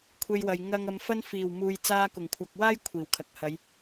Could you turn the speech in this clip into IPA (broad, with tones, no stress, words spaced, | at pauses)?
kʷʰe˧jwɐ˨j ŋɐ˨ŋ ɐ˨˧mfɐ˥n fiː˨˩wmuː˨j t͡saː˧kʊ˨˩ŋkʷʰɐ˨k̚waː˥j kʷʰiː˨˩wkʰɐ˨k̚hɐ˨˧j